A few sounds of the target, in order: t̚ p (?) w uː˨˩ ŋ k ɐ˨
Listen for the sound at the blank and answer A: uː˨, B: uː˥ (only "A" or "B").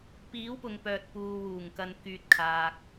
A